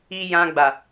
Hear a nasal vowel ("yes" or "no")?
yes